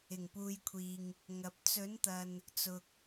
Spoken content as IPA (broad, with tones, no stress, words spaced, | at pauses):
ɪ˨˩ŋpuː˨˧jkʷʰiː˨ŋ | ŋɐ˨p̚ t͡sɵ˨˥nt̪ɐ˨n | t͡sʊ˨k̚